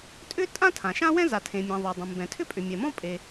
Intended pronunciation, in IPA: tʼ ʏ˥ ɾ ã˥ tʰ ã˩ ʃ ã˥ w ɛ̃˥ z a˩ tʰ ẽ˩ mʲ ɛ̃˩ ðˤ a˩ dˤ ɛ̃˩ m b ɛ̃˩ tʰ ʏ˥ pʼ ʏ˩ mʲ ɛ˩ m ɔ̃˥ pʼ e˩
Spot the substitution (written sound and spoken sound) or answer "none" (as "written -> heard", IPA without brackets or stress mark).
ɾ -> tʼ